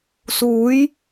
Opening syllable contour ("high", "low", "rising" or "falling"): rising